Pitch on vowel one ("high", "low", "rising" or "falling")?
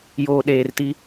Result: low